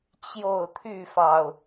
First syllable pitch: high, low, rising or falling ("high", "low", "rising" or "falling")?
falling